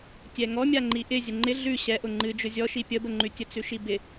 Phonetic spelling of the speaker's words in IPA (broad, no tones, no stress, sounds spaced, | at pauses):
tʲ ɛ ŋ ɔ mʲ a ŋ͡ǃ i ʔ ɪ zʲ ə ŋ͡ǃ ɪ ɮ ʉ ɕ ɛ ʔ ʊ ŋ͡ǃ ɨ d͡ʒ ʊ zʲ ɔ ʃ i pʲ ə b ə ŋ͡ǃ ʉ tʲ ə t͡s ʉ ʃ i b ɪ